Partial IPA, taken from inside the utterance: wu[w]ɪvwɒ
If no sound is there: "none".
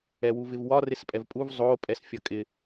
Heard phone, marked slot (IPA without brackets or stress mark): v